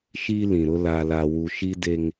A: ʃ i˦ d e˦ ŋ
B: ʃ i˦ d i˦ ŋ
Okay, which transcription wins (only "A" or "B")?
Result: A